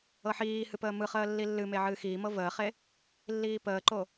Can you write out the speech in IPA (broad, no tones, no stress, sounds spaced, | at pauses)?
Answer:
ɤ ħ iː h ɨ p əː m ɯ χ əː lː i lː ɨ m e ʕ ɨː x iː m ɤ v əː χ e | lː iː p əː ǃ o